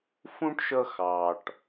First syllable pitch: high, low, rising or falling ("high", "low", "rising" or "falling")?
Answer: high